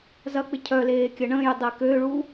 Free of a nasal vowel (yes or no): no